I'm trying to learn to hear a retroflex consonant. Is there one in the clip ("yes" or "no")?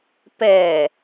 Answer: no